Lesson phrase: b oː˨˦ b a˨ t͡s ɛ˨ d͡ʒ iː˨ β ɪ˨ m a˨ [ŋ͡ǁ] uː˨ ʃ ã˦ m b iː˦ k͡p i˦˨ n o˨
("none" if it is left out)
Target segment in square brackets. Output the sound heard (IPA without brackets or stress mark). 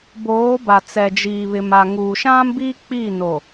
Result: ŋ